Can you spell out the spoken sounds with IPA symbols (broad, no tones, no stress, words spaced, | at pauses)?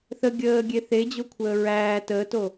θə ɡʲəːɡʲe θed͡ʑokʷʰəː ɹæː təːto